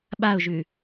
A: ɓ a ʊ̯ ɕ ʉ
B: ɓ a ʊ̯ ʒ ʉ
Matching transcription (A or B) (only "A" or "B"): B